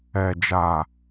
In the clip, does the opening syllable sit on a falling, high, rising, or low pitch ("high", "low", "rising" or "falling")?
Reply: low